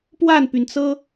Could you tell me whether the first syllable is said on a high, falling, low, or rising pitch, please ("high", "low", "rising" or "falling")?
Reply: falling